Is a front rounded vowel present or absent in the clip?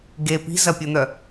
present